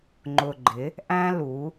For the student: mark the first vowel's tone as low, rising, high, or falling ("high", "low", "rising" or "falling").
low